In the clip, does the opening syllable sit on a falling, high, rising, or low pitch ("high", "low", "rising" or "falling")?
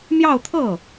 falling